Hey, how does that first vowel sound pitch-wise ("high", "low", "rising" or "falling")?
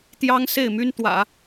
high